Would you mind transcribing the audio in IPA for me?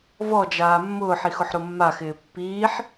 v ɔ d͡ʒ aː mː ʊː ħ i x ʊ ħ ɾ o mː a x ɪː pː iː ħ

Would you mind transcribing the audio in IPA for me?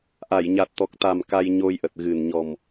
ʔ a˧˩ j ɲ a˨˩ t̚ t̪ ɔ˨˩ k̚ t̪ a˨˩ m k a˧ j ɲ o˧ j ʔ ə˨˩ t̚ ɣ ɨ˨˩ n ɲ ɔ˨˩ m

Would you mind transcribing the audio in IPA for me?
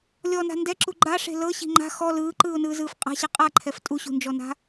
lʲ ɔ n a̤ n d ɛ ǁ u ɡ͡ǃ a ʂ e̤ l ɤ ɕ i̤ ŋ͡ǃ a̤ x ɔ l ɯː ǃ ɯː ʊ̯ n ɯː z ɯː f qʼ a̤ ɕ ɛ qʼ a ǃʰ ɛ f tʼ u ɕ ṳ n d͡ʒ ɔ n a̤

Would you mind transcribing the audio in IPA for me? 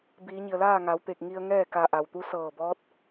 b iː˩˧ ɲ i˩ ə̯ l aː˥˨ ŋ a˩˧ w t̪ e˧˩ k̚ ŋ i˧ ə̯ ŋ ɛː˥˨ k a˧ ʔ a˩ w t̪ u˧˥ s ɤː˧˩ b ɔː˧˥ t̚

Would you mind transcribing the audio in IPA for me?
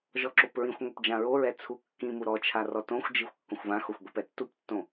ʒ ɔ ǁ o p ɹ ĩ xʷ ŋʷ ɛ p d͡ʒ ã ɹ o ɹ ɛ t͡sʰ u kː ĩ m u ɾ ɔ t͡ʃʰ a r ɔ t õ xʷ d͡ʒ i xʷ kː õ xʷ v ã x o xʷ ɡʷ i p ɛ tː u p tː õ

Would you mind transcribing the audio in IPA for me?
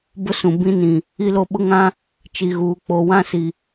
b ʊ˦ s ũ˨ b ĩ˦ n ĩ˨ | i˦ l o˦ ɓ ʊ˦ ŋ ã˦ | t͡ʃ i˨ ɣ uː˨ k͡p o˨ w ã˦ s i˨

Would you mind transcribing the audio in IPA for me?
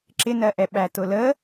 ǁ ɪ n ɜ ʔ ɛ ɓ æ t ʊ l ə

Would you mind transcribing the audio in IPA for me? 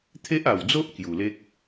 t̪ʰ e˦ ʔ a˨˩ w d͡z o˦ ʔ k j u˨˩ l e˦ k̚

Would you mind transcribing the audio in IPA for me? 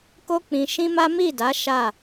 k o˦ k͡p ĩ˧ ʃ ĩ˦ m a˦ m i˦˨ d a˨˦ ʃ a˦˨

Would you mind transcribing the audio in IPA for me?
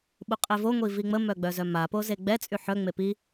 ɓ u qʼ e v o ŋʷ i v i ŋ͡m ə m œ ɡ͡b œ z œ m a p o z e ɡ͡b ɛ t͡sʼ y ħ œ ŋ͡m e p i

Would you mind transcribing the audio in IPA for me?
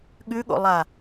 ɠ ʉ ɠ o̰ lˠ a

